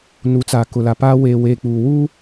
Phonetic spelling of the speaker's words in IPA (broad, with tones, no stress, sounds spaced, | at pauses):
n u˨˦ t͡s aː˨ k ʊ˨ l a˨ p aː˨ w eː˨ w eː˨ k͡p uː˨ w uː˦